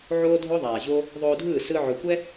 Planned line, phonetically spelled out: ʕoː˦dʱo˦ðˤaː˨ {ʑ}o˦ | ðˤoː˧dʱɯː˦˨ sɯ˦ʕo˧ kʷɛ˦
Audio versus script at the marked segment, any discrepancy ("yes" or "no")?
no